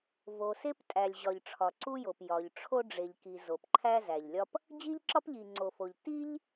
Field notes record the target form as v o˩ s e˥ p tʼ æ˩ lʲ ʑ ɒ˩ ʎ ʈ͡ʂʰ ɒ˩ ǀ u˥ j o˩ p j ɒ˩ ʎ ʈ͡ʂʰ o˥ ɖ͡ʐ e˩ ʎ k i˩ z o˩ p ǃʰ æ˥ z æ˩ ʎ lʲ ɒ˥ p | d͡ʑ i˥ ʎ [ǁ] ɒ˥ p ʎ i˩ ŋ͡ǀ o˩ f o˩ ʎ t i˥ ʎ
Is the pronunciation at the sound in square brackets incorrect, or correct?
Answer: correct